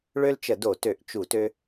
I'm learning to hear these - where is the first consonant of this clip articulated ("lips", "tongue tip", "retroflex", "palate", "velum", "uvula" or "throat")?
retroflex